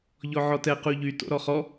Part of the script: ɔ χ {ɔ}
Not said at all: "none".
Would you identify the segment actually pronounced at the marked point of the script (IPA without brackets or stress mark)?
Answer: ɔ